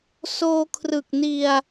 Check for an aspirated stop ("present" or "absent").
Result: present